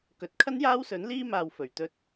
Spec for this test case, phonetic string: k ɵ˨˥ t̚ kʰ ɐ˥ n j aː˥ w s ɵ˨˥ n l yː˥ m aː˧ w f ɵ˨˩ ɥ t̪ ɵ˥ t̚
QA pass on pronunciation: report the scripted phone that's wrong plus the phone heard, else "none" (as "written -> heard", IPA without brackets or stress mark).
yː˥ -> iː˥